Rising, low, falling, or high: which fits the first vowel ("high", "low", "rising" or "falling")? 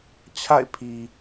falling